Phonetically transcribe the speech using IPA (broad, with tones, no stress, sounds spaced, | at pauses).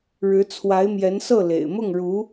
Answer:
ɻ ɻ̩˧˥ t͡sʰ w a˧˥ ɪ̯ m j ɛ˧˥ n s ɤ˥˩ l ḛ˨˩ ɪ̯ m ʊ˥˩ ŋ ɻ u˧˥